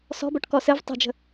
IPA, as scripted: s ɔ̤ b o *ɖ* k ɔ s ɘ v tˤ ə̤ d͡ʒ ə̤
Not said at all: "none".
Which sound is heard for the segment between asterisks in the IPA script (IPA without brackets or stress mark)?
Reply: ʈ